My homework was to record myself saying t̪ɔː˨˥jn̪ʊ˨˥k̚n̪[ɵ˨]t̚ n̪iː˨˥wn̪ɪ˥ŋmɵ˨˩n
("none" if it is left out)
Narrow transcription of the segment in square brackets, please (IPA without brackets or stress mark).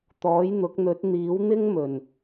ɵ˨˥